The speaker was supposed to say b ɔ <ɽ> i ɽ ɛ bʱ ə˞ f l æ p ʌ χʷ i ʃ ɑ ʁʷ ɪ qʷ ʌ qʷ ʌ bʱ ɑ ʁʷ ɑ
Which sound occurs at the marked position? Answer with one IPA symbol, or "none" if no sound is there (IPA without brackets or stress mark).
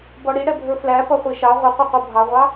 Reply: ɽ